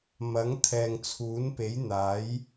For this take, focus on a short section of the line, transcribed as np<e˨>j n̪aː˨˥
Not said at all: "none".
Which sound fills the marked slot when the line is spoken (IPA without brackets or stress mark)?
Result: e˨˥